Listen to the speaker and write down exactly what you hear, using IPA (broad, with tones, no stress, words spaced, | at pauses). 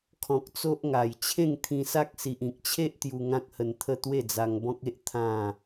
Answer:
kʰɔ̃˨k̚t͡so˦ʔŋa˨˩j t͡ɕʰẽ˥˧ŋt̪ʰĩ˧sa˦k̚si˨ʔ ĩ˨k̚t͡ɕʰe˦ʔ t̪ju˧ ŋã˦k̚hə˧nt̪ʰə˥˧ t̪we˥˧d͡za˧ŋbɔ̃˦k̚e˦ʔ t̪ʰã˥˧